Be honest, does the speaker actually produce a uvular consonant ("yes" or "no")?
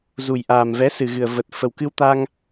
no